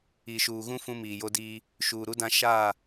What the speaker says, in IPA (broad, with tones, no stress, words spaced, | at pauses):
i˨ʃuː˨ɣũ˦ fũ˦miː˨jo˦diː˦ | ʃuː˨ɾu˦ dã˦ ʃaː˦˨